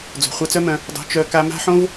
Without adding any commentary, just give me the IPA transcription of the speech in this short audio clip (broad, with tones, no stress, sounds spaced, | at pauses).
d͡z o̤˨ χʷ a˧ t͡s œ˦ m œ̃˧ | dˤ o̤˧ t͡ʃ œ˧ k a˧ m a̤˦ ħ õ˦ v